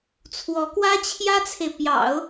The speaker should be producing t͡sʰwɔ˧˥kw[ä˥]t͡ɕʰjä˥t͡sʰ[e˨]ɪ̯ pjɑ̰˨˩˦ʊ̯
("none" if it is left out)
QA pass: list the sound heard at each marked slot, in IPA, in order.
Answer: ä˥, e˨

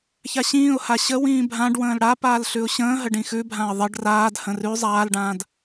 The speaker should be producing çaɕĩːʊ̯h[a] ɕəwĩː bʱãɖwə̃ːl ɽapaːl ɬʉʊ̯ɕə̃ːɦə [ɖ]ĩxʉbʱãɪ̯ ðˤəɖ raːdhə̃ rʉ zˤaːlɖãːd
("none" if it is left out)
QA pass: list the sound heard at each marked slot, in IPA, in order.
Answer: a, ɖ

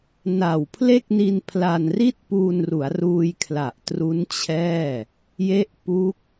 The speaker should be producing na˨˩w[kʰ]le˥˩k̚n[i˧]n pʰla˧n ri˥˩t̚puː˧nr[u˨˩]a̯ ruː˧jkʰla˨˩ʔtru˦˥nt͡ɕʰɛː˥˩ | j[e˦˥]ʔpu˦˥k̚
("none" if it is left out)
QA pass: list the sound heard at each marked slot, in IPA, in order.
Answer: pʰ, i˧, u˩˦, e˦˥

